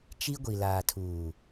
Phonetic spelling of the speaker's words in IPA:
t͡ʃ i˦ ɡʷ i˨ l aː˨ tʰ uː˨

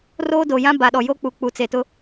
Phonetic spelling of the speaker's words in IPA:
r oː˦ d o˨ j ã˦ b a˨ ɗ ɔ˨ j o˦ k͡p u˨ k͡p u˨ t͡s e˨ t ʊ˦

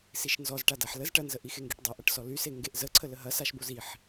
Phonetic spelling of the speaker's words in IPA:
s i ʃ n z ɔ z ʈ a d a ħ l ə z ʈ ɐ n z ə ʔ i x e ŋ ɡ e ʈ dˤ ɐ ʔ ɐ ʈ s ɔ l y s e ŋ ɡ e ʔ z ə ǀʰ ə l ə ɦ ɐ s a ʃ b o z i ħ

